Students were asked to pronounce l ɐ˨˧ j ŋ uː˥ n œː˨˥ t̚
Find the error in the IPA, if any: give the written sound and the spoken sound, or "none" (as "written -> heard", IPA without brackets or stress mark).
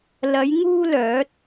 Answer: n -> l